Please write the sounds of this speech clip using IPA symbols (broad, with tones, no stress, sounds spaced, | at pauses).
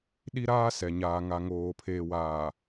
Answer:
ɗ i˦ ɾ aː˦ s ɛ˨ ɲ aː˨ ŋ a˨ ŋ oː˨ pʰ eː˨ w aː˨